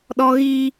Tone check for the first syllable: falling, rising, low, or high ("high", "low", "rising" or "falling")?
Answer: high